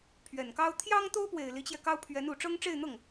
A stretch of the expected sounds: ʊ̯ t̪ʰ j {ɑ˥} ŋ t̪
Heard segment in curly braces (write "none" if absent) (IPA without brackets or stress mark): ɑ˥